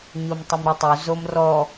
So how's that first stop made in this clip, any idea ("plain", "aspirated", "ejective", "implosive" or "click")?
plain